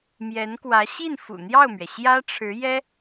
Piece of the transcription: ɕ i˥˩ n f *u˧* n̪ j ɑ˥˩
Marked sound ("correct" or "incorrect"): incorrect